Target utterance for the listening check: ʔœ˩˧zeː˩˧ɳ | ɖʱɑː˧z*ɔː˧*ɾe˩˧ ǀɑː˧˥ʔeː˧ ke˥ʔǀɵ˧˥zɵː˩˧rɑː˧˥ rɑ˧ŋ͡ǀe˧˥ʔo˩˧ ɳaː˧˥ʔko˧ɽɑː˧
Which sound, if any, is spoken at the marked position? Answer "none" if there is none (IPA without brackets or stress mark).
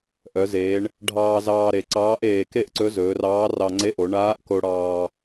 ɑː˧